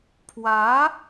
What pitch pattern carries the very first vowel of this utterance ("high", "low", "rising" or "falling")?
rising